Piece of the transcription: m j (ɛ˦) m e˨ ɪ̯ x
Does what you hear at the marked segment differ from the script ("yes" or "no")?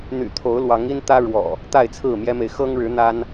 no